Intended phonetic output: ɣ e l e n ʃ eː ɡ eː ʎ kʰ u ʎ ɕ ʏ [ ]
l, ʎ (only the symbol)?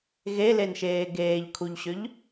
ʎ